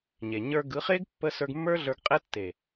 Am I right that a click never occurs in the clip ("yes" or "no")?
yes